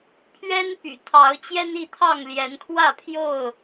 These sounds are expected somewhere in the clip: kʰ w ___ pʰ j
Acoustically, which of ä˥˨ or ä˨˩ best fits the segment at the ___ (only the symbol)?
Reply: ä˥˨